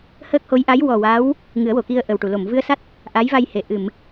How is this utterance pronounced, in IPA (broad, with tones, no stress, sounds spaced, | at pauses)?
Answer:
h əː˦˥ k̚ h o˧˥ j ʔ a˧˥ j w ɔ˨˩ w a˧˥ w | ŋ ɨ˨˩˦ ə̯ w o˨˩˨ k i˧ ə̯ ʔ ə˨˩ w ʈ u˨˩˨ l o˨˩˨ m v ɨ˧ ə̯ s a˦˥ t̚ | ʔ a˧˥ j v a˧ j h e˨˩˨ ʔ ɨ˨˩˨ m